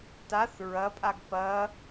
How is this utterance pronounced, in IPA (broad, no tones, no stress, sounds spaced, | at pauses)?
t a θ ɹ ɐ pʼ a ɡ p ɐ